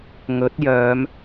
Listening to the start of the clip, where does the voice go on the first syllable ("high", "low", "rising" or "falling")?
rising